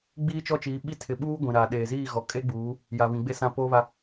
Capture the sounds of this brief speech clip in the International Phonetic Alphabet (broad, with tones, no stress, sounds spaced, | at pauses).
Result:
ɡ͡b iː˦ t͡ʃ ɔ˦ t͡ʃ iː˨˦ ɓ i˦ tʰ ɪ˨ ɓ uː˦ ɡʷ ĩ˨ ɾ aː˨ ɗ eː˨ z iː˦˨ ɣ ɔ˨ kʼ e˦ ɡ͡b uː˨˦ | j a˨ β ĩ˨ ɡ͡b e˦ s ã˦˨ p o˦ β a˦